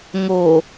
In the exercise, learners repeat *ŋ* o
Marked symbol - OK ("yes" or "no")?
yes